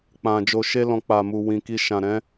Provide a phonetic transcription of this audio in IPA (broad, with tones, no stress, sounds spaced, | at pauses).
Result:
k͡p ã˨ d͡ʒ o˨ ʃ e˧ l ɔ̃˨ k͡p a˨ m u˨ w ĩ˨ k i˧ ʃ ã˨ ɾ ɛ̃˨˦